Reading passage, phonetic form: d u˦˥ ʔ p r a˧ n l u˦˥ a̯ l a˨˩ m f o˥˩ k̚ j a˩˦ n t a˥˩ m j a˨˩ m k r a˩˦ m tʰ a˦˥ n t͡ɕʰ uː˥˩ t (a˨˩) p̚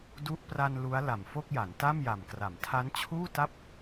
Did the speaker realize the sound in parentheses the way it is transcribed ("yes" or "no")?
no